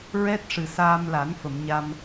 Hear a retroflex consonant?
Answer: yes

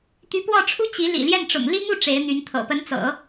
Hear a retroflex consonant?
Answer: yes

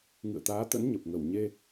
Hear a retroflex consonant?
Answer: no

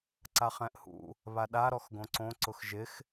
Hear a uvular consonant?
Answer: yes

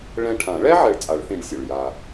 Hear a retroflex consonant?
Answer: yes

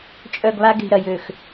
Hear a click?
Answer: no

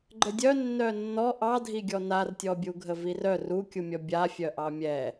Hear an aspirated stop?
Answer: no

